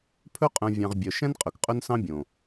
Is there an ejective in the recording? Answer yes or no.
yes